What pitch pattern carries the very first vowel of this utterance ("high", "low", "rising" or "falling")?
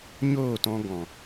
falling